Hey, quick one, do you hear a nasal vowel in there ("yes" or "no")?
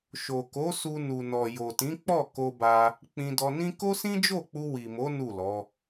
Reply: yes